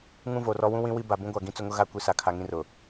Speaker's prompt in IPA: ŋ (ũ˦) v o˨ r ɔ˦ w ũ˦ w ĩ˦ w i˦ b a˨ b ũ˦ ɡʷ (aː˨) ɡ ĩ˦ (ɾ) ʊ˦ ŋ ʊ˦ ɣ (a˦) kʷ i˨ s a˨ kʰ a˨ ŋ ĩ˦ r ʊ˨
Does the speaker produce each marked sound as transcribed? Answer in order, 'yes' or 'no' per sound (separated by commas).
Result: yes, no, no, yes